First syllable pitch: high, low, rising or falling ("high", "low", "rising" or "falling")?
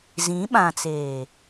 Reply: rising